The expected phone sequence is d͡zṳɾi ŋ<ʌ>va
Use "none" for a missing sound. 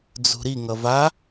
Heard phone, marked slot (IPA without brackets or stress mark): ʌ